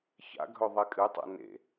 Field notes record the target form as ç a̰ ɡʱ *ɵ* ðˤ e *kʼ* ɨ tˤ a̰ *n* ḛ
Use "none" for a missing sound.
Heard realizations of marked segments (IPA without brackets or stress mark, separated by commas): ɵ, kʼ, n